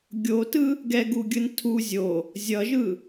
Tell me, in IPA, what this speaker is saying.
ɡʲ o t ɯ | ɡ ɛ ɡ u ɡʲ ɯ n tʰ u zʲ o | zʲ ʌ ʒ ɯ

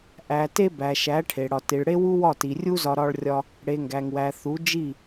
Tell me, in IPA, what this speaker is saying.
ʔ æ˨ t e˧ b æ˨ ʃ æ˨˦ ʈʰ e˨ ɽ ɒ˨ t i˨ ɭ ɽ e˦ w u˦ w ɒ˦˨ t i˨ rʲ u˦ z ɒ˧ ɾ ɒ˧ ɭ rʲ ɒ˧ | ɽ e˨ ŋ ɡ æ˨ ŋ w æ˨ θ u˨˦ d͡ʒ i˦˨

